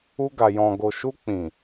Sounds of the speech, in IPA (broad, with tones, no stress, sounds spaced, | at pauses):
u˧ ɡ a˨ j ɔ̃˨ ɡ o˨ ʃ u˧ k͡p ĩ˨